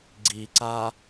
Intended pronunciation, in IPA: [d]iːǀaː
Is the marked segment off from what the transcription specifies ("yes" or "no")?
yes